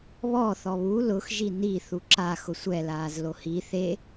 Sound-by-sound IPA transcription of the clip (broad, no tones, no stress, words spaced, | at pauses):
βɔ θɔβu lʊx ʒini θuǁa xʊsʷɛ laːzlohi θe